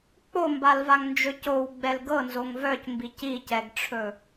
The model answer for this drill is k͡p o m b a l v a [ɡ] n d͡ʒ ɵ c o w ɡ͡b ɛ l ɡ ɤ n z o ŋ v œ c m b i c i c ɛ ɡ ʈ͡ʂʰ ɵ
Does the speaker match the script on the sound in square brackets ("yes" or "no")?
no